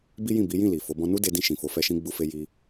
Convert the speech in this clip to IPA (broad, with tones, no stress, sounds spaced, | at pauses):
b i˦ j ĩ˦˨ b i˨˦ j ĩ˦˨ l i˨ f o˨˦ b ɔ̃˧ n u˦ d e˧ d ĩ˧ ʃ ĩ˨ f o˨˦ f ɛ˧ ʃ ĩ˦ ɡ͡b u˦ f e˦ j i˧